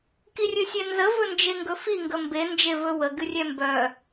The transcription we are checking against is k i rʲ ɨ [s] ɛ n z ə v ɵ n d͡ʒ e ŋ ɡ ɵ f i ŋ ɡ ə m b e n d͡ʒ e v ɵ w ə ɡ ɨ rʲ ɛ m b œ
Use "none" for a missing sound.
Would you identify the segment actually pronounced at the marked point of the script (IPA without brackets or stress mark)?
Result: sʲ